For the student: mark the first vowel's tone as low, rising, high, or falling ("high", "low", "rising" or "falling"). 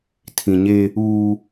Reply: low